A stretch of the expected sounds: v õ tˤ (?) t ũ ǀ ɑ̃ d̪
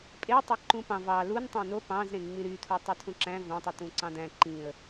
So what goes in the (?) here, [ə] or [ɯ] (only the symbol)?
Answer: ɯ